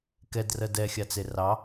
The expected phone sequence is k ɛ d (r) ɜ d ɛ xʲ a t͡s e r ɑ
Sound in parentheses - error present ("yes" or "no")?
no